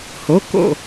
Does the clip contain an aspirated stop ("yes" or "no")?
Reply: no